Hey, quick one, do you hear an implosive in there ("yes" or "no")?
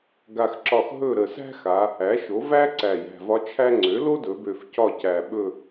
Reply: yes